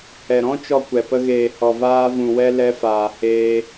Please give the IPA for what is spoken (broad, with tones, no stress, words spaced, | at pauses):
hɛ˨ɾɔ̃˦ t͡ʃɔ˦kʷɛ˨ pə˧ɣeː˨ hɔ˨vaː˧vũ˨wɛ˧ lɛ˧faː˨heː˧